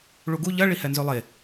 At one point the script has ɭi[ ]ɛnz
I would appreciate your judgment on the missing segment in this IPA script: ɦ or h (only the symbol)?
h